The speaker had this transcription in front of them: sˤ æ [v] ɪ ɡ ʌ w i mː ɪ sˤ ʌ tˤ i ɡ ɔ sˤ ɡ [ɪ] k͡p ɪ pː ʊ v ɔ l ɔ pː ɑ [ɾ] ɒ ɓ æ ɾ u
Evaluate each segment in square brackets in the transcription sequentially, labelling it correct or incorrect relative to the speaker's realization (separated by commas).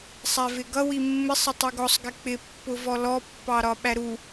correct, correct, correct